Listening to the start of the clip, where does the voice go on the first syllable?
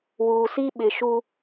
low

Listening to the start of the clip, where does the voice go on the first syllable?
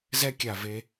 high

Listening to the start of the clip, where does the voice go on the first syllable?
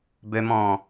low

